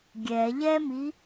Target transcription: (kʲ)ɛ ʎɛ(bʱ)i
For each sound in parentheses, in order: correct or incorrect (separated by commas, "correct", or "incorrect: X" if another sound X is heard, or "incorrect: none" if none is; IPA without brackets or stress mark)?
incorrect: ɡʲ, incorrect: m